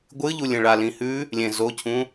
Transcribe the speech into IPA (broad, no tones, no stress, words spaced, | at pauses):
ɡʷɨʎu lʲẽɭalĩ hʉ | lʲẽ zocʰũ